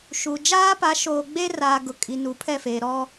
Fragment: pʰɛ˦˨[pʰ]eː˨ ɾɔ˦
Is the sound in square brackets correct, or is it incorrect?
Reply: incorrect